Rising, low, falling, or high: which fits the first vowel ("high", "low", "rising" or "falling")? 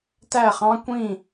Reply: falling